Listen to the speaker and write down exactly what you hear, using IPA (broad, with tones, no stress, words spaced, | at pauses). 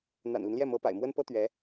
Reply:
n̪a̰˨˩nli˦nljɛ˥˩ mɤ˧˥pa̰˨˩ɪ̯mwə˥n pɤ˥t̪ɥɛ˧˥